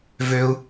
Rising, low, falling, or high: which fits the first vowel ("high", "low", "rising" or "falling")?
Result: high